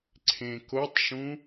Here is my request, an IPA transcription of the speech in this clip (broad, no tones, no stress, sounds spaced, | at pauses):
ǀʰ ẽ k o tˤ ʃ ũ